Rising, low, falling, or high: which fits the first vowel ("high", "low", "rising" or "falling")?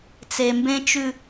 low